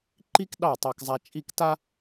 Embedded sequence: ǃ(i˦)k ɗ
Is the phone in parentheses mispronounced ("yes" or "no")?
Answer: no